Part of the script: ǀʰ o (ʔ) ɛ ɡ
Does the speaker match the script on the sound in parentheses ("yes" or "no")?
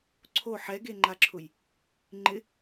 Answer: no